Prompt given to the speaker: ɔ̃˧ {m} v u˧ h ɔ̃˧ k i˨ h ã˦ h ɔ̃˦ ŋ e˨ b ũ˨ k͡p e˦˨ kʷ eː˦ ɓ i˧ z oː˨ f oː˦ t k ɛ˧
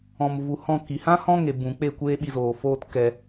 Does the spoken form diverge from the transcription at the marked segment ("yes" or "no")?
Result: no